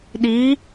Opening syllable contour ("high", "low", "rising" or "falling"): rising